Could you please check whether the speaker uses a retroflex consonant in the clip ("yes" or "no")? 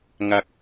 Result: no